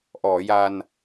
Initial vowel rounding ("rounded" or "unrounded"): rounded